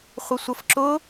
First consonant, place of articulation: uvular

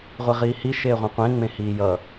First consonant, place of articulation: uvular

